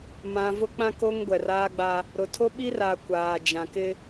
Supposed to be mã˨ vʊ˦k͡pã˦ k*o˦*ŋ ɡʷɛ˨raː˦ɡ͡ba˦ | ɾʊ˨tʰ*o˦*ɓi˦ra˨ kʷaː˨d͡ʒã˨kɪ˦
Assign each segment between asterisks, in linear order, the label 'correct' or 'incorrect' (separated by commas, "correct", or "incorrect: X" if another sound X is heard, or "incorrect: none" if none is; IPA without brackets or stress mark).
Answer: correct, correct